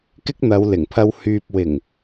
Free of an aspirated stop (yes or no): no